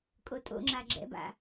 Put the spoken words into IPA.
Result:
kʼotʼo̰ŋ͡ǁa ɡ͡ǁɛ̰ba̰

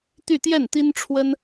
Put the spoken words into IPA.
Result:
t̪y˥˧t̪jɛ˥˩nt̪i˥nʈ͡ʂʰwə˥n

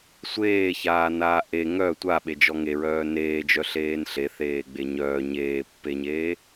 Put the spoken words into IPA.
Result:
sʷeːçaːnaː ʔe ŋœ tʷaɓed͡ʒɔ ŋeɹœː neːd͡ʒœɬeːn ɬeθeːɡ͡be ɲœː ɲeːpːeɲeː

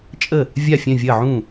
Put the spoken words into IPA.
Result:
t͡ʃʼə˥˩ | vʲa˥˩ fʲœ̃˥˩vʲɐː˥˩ʕũː˥˩

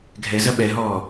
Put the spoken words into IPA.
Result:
ɡʱɛzɐ ɓɛɦɔː

